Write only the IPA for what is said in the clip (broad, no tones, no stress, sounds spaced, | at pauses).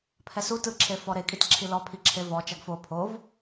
pʰ ɛ s u t ɯ ǁʰ e f ɔ ɾ e kʼ i t ǁʰ i l ɔ pʰ i ǁʰ e v ɔ t͡ʃ a ɡ f o pʰ o v